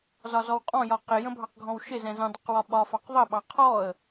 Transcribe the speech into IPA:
z ɒ z ɔ w qʼ ɔ̃ j ɒ q ɪ j ə̃ bʱ ɑ q ɡʱ ɔ̃ w ʃ ɪ z ɛ̃ z ə̃ dˤ ə q w ɒ ɓ ɒ f ɑ q ðˤ ə ɓ ɑ qʰ ɔ ə̯

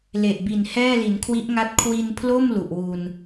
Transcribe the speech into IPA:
l e˨˩ ʔ b i˨˩ n h ɛː˥˩ l i˩˦ n kʰ w i˦˥ ʔ ŋ a˦˥ t̚ kʰ w i˧ n pʰ l o˥˩ m l u˨˩ ʔ w u˧ n

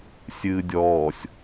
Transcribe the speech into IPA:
sʲ ɨː dʲ ɔː sʲ

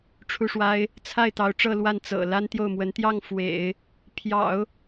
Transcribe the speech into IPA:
ʈ͡ʂʰ u˥˩ ʂ w a˥ ɪ̯ | t͡sʰ a˥˩ ɪ̯ t̪ ɑ˧˥ ʊ̯ ʈ͡ʂ ɤ˥˧ l w a˥˩ n t͡s ɤ̰˨˩ l a˥ n t̪ j o˥˩ ʊ̯ m w ə˧˥ n t̪ j ɑ˥˩ ŋ f w ḛ˨˩˦ ɪ̯ | pʰ j ɑ̰˨˩˦ ʊ̯

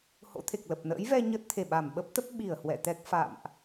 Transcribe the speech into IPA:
h o̰˧˥ t̪ʰ e˨˩ k̚ l ə˨˩ p̚ n ə̰ː˧˥ j v ɛ˧ ɲ ə˦˥ t̚ t̪ʰ e˧˩ ɓ a˧˩ m ɓ ə˦˥ p̚ t̪ ə˦˥ p̚ ɓ i˧˩ ə̯ h w ɛ̰˧˨ t̪ ɛ˦˥ k̚ f a̰˧˨ m ʔ

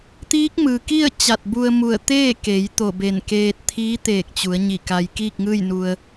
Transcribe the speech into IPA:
t̪ iː˧˥ k̚ m ɯː˩ k i˥˨ ə̯ t͡ɕ a˧˩ t̚ b u˧ ə̯ m u˧˩ ə̯ t̪ eː˥˨ k e˩˧ j t̪ o˧˩ b e˧˩ n k eː˧ t̚ t̪ʰ iː˧˥ t̪ eː˧˩ k̚ t͡ɕ u˩˧ ə̯ ɲ i˧˩ k a˧ j k iː˥˨ k̚ ŋ ɯː˥˨ j n u˧ ə̯

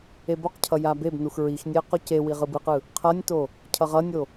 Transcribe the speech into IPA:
e b o q cʰ ʌ j a b e b n u x ɹ i x nʲ e ə̯ q o c e w i ʁ ɯ b ɯ q ɯ | qʰ ʌ nʲ t o | cʰ ʌ ʁ ʌ nʲ o

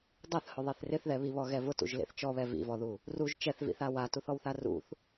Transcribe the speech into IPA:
dˤ ɛ θ h ʊ ðˤ e θ r ɪ θ ð ɛ β i β ɔ ɣ ɛ v ʊ t ṵ ʒ l ḛ θ t͡ʃ ɔ β ɛ v ḭ v ɔ ð u | r u ʒ t͡ʃ ɛ θ v ḭ θ a w a t u θ ɔ w θ a r ṵ θ

